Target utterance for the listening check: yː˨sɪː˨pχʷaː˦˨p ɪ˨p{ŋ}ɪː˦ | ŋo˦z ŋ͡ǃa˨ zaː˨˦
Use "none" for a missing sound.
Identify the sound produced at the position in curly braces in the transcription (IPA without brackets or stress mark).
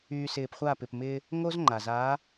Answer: m